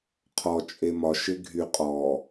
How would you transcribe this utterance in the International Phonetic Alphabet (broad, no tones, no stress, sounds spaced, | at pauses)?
qʰ ɔ t͡ʃʼ e m ɒ ʃ ɪ ɡʱ y qʼ ɔ